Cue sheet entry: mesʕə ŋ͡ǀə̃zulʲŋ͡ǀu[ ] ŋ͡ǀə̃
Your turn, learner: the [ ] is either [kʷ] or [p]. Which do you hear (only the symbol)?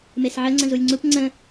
p